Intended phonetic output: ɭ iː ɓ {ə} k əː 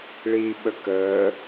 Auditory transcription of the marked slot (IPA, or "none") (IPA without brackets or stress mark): ə